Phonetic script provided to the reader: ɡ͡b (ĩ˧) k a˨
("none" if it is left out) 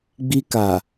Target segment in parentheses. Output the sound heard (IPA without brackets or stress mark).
i˧